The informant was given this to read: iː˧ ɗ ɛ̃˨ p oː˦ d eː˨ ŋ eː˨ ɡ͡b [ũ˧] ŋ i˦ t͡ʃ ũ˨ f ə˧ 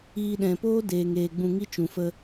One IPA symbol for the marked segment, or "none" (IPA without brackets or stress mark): ũ˧